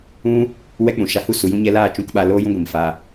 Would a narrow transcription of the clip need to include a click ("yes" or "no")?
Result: no